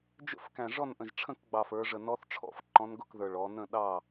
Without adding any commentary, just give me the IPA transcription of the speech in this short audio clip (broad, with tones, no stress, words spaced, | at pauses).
d͡ʒə̰˥˨fkæ̃˨˩ ʐɔ˥˨nʔə̃˨˩ʒʈ͡ʂʰə̃˥˨kɡ͡bɑ˨˩f ə˞˩˧ʐə˨˩nɔ˧˥θ ʈ͡ʂʰɔ̰˧˥fǃɔ̃˧˥nɡʊ˥˨k ðə˞˨˩ɭɔ˩˧nə̃˥˨ ɗɑ˥˨